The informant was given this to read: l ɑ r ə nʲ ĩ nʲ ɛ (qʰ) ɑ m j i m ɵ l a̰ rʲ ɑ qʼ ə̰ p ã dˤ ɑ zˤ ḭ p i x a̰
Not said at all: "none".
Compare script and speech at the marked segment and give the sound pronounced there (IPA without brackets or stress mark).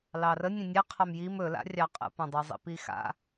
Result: qʰ